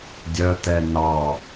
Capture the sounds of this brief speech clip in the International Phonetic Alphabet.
dʲ œ t̪ ɛ n ɑ

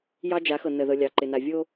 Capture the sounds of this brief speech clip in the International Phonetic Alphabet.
j ɑ˦ d͡ʒ a˨˦ x ɤ˨ n ə˨ ð ɤ˨ lʲ ɑ˨ ǃ ɪ˨ n a˨ vʲ o˦

